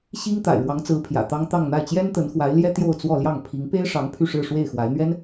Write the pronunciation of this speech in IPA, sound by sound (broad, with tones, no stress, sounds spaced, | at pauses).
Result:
ɕ i˥ ŋ t̪ a̰˨˩ ɪ̯ ɻ w ɑ˧˥ ŋ t͡s ɹ̩˧˥ pʰ j ä̰˨˩ t̪ ɑ˥ ŋ t̪ ɑ˥˧ ŋ n̪ a˥˩ ɪ̯ t͡ɕ j ɛ˥ n t̪ ə˧˥ n x w a˧˥ ɪ̯ l j ɛ˥ t̪ j o˥˧ ʊ̯ t͡s w ɔ˥˧ l j ɑ˥˩ ŋ pʰ i˧˥ ŋ p e˥ ɪ̯ ʂ ɑ˧˥ ŋ pʰ y˥˧ ʂ ɻ̩˥˧ ʂ w e˥˩ ɪ̯ x w a˧˥ ɪ̯ n̪ ɥ ɛ˥ n